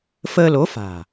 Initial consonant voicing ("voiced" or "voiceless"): voiceless